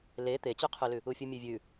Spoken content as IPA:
l e t̪ e t͡ɕ ʉ qʰ ʉ l ʉ | u fʲ u mʲ ʉ vʲ ʉ

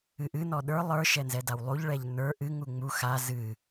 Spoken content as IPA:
ɨ ʔ ɨ n ɔ ɗ ə˞ lˠ ə˞ ʃ ɛ n z ɛ d a w lˠ u ʎ ɭ ɛ ʎ n ə˞ ʔ ɨ ŋ u ŋ͡m u x a z ɨ

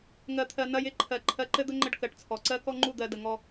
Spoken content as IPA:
ŋ ɜ˧ t̪ʰ ɜ˧ n ɐ˧ j ɪ˦˨ ǃʰ ɜ˨ ǃʰ ɜ˧ ǃ ɘ˦ d̪ ə˦ ŋ͡ǃ ə˧ ɖ k ɜ˨ ʈ t͡sʰ ɔ˨ ǀ ɜ˦ k ɔ˦ ŋ͡ǃ u˦˨ d̪ ɜ˦ d ə˧ ŋ ɔ˦

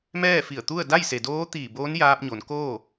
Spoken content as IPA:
m ɛː˥˨ f i˧˩ ə̯ t̪ u˥˨ ə̯ d a˥˨ j s e˩ d oː˧˥ t̪ iː˧˩ b oː˧˥ n j aː˧ p̚ ɲ o˩˧ n k oː˥˨

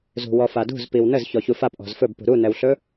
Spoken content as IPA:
z ṳ w ɔ f a d ṳ z p i w n ə z ç ɔ ç u f a p ʔ ɔ̤ z f ɵ b p ṳ ɾ u n ɛ w ɬ ɵ

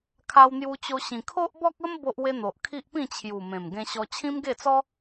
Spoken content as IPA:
kʰ a˧ w n̪ j u˧ t͡ɕ o˧ ɕ ĩ˨˩ kʰ o˦ ʔ b ɔ˦ k̚ ə˦ m b o˦ ʔ w e˦ n̪ o˨ ʔ kʰ i˦ ʔ p ĩ˥˧ t͡ɕʰ j u˨˩ m ẽ˨˩ m ɡ ẽ˧ ɕ ɔ˧ t͡ɕʰ ĩ˦ m ɡ e˥˧ t͡s ɔ˦

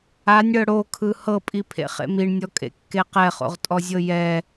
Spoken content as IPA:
a nʲ ɽ ɤ ɽ o kʰ ɯ h ɤ pʼ i pʰ ḛ χ ḛ m i ɳ nʲ ɔ kʼ ḛ kː e q ɛ χ o̰ ʁ tʼ ɔ zʲ ɤ j ɛ

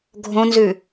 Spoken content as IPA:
ɡʱ õ n z ʉ

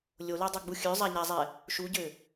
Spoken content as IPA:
lʲ o l œ dˤ œ ɡ͡b u xʲ ø zˤ a ɲ a zˤ ɛ | ʃ u ɟ ø

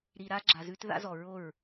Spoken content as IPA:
ɾ i˨ ɾ a˧ ɡ͡ǁ a˨ z ʉ˧ t ð a̰˧ z ɔ˨ ɹ o˦˨ ɹ

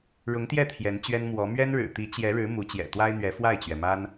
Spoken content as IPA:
ɻ ʊ˧˥ ŋ t̪ j ɛ˥˩ t̪ʰ j ɛ˧˥ n t͡ɕ ɥ ɛ˥ n m w ɔ˧˥ m ɥ ɛ˥ n ɻ ɻ̩˨˩ t̪ i˧˥ t͡ɕ j ɛ˧˥ ɻ ɻ̩˧˥ m u˧˥ t͡ɕ j ɛ̰˨˩ t̪ w a˥ ɪ̯ n̪ ɥ ɛ˧˥ f w a˥˩ ɪ̯ t͡ɕ ɥ ɛ˩ m a˥ n

